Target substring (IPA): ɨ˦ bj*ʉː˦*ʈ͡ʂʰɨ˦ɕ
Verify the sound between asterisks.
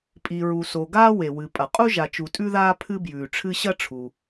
incorrect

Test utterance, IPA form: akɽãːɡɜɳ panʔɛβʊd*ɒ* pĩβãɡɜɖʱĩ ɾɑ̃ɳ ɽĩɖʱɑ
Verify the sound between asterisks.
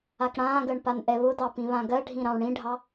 incorrect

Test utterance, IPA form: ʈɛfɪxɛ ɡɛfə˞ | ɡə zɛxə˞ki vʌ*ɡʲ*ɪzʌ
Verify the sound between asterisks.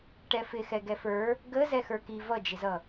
incorrect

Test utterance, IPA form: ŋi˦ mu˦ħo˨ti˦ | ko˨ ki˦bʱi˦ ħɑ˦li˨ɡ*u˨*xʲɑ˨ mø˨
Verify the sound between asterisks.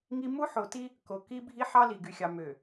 incorrect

